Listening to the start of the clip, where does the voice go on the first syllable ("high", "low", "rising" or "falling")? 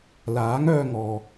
rising